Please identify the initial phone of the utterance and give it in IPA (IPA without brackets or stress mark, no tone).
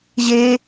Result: ʑ